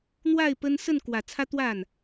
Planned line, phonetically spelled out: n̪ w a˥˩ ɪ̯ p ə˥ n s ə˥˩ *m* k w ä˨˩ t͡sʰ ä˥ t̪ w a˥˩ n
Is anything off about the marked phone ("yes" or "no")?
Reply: yes